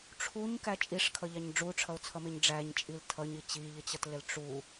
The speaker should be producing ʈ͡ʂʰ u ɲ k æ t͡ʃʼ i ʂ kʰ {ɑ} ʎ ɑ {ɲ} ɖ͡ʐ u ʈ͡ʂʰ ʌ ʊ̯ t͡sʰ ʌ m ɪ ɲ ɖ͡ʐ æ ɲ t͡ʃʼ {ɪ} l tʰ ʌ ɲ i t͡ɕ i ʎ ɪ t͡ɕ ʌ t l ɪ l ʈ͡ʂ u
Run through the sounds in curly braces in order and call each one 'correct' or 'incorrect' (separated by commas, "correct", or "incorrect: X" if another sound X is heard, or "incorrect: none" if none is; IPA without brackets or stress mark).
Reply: incorrect: ʌ, correct, incorrect: i